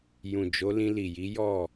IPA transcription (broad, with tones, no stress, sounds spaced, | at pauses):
j ũ˨ d͡ʒ o˨˦ l ĩ˧ l i˨ j i˨˦ j ɔ˦˨